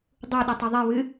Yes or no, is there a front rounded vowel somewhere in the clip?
yes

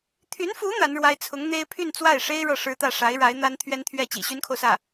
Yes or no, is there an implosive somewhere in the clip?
no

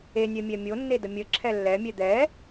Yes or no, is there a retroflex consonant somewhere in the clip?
no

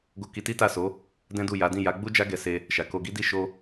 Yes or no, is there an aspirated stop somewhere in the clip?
no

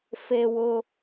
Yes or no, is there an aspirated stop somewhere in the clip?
no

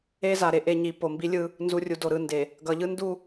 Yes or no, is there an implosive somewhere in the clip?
no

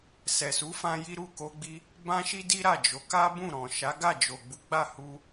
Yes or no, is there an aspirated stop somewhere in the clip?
no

